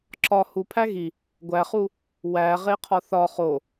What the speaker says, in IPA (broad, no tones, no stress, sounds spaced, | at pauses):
ǁ ɒ h u pʰ æ ɣ i | ɡʷ æ χ u | w æ ʁ e qʰ ɒ θ ɒ χ o